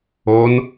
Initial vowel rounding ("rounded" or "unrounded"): rounded